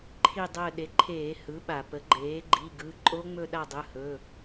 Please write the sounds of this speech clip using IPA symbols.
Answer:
ǃʰi˦˨dˤəː˦˨ ɗe˩˥ǃʰeː˧˩˧ hɯ˩˥ɓa˩pə˩˥ ɡ͡ǃeː˩˥ ɡ͡ǃi˩˧˩ɡɯ˩˧˩ ǃʼo˦˥ŋ͡mɵ˦˨ ɗa˦˨dˤɯ˩˧˩hɵ˩˧˩

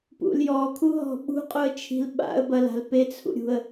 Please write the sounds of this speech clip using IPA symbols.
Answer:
pṵljɔkʰu ɦɔ̤ɓṳ qʼuə̯t͡ʃʰi̤lɓa̰ə̯ bɐla̤l pet͡sʰṵɾʲṳə̯

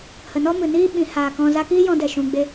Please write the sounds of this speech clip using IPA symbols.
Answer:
hə˨nɔ˦mɨ˨niː˦ ɓĩ˨˦ haː˨kɔ̃˧ za˧kiː˦jɔ̃˧dɛ˨ ʃũ˧ɡ͡be˦

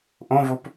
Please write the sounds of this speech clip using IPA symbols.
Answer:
ʔõvop

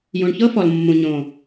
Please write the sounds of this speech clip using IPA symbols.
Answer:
jũ˨ɳçɤ˦fɔ˨lmːũ˨ ɲõ˨

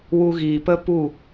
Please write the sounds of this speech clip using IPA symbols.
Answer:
wu˧ɣiː˨pə˦ pu˦˨

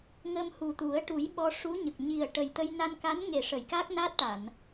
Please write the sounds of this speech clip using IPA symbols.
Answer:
ŋə˧mhu˨˩t̪u˨˩˦ə̯ ʈu˨˩˦j ɓɔ˧ʂu˧˥ɲə˨˩k̚ ɲi˨˩ə̯ʈə˨˩jt̪ə˧j na˧nka˧˥nŋe˨˩ʂə˨˩˨j ka˦˥k̚na˦˥t̚ʈa˨˩˨n

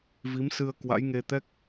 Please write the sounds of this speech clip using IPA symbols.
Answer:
vi˨˦msɨ˧ə̯ kwa̰˧˥jŋe˧t̪ɛ˦˥k̚

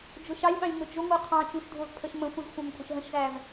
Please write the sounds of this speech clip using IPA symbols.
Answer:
d͡ʒʊʃɑlʲɓɑ̃lʲ nʊd͡ʒʊŋʷɜ qʰɑ̃t͡ʃũʃ dʱʊzpʰəʃ mə̃xʷĩz xʷɑ̃mkʷʼə̃ʃɦə̃ʃzæv

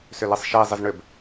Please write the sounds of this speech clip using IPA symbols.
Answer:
sʏlesˤʃe zˤɪzɳʏb

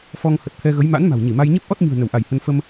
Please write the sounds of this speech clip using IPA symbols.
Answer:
fɔ˧ŋ hə˨˩t̚t̪ʰɛ˧ɣə˨˦j ma̰˧˥n ma̤˨˩wɲi˧˩ma˧j ɲe˦˥p̚ʔɔ˦˥t̚ɲɨ̤˨˩ə̯ nə˧˩wʔa˧˩jhə˧n fə˧m

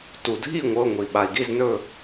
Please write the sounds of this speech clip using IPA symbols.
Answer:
tu˩dʱi˥˨ŋʷɤ˩˧˩ ŋʷi˩ɓa˩i̯ɡi˥˨z nɵ˥˨

